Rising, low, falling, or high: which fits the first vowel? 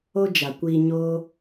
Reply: high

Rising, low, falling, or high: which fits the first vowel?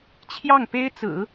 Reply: falling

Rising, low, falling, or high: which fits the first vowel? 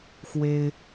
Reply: high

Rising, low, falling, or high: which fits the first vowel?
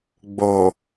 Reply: low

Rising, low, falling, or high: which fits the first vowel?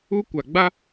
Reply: high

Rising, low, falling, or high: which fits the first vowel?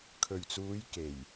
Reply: low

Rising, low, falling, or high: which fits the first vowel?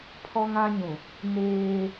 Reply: high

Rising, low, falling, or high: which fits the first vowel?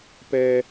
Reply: high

